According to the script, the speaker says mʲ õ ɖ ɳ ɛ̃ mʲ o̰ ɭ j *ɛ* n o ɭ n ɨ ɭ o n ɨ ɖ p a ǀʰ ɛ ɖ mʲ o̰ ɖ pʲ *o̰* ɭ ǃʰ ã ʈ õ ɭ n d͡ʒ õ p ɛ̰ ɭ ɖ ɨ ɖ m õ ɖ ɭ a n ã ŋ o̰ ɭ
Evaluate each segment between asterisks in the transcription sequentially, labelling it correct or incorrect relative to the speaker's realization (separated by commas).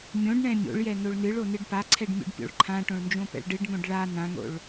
correct, correct